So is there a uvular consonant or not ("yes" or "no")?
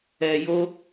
no